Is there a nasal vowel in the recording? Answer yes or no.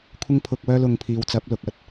no